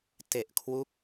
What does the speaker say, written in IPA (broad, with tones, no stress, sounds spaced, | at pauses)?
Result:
t e˨˩ ʔ kʰ w u˥˩ k̚